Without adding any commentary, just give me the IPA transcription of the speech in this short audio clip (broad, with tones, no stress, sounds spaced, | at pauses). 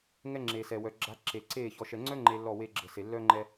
ŋ ɛ˦ ŋ͡ǁ e˨ s ɛ˨ w œ˨ ɡ͡ǁ a˨˦ ǁ e˨ ǀ e˦˨ ç ɔ˨ ʃ ɛ˨ ŋ͡ǀ œ˦ ŋ͡ǃ e˦ lː ɔ˦˨ w e˦ ɡ͡ǁ ə˨ s e˨ lː œ˦ ŋ͡ǃ ɛ˦